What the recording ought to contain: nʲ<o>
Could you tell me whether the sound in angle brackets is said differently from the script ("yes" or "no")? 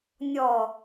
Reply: yes